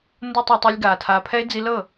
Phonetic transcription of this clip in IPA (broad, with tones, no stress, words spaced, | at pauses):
ndo˦tˤa˧tˤɛ˧lʲɡaː˨ tʰaː˨pʰɛ˧e̯ d͡zi˧lɤ˦˨